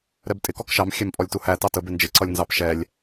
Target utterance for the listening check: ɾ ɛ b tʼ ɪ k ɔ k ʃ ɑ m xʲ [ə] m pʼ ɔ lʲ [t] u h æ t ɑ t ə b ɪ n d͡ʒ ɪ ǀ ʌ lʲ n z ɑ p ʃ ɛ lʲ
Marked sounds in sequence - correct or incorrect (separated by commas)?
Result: incorrect, correct